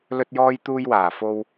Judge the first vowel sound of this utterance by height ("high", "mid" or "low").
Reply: mid